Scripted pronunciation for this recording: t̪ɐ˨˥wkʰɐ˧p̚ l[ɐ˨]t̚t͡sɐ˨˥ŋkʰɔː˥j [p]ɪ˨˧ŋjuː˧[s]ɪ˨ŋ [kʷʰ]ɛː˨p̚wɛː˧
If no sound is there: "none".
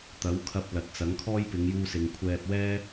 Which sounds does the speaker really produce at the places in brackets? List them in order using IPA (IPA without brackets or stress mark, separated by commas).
ɐ˨, p, s, kʷʰ